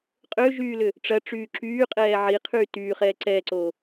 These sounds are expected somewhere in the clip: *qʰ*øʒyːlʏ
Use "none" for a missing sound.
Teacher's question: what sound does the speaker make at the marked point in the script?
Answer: qʼ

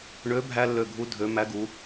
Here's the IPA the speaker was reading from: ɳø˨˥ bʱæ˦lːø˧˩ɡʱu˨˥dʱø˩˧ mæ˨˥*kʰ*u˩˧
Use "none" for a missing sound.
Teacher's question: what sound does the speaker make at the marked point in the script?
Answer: ɡ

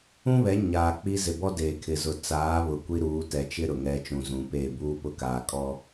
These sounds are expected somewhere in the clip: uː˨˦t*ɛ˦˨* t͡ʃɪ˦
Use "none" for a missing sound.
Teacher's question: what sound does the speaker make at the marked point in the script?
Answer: ɛ˨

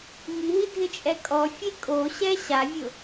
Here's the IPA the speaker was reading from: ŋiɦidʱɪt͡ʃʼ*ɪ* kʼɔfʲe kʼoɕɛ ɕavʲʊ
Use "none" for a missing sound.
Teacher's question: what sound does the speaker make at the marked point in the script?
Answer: ɛ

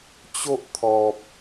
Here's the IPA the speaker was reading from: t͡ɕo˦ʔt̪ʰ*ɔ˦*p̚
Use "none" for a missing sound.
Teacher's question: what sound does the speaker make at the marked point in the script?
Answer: ɔ˨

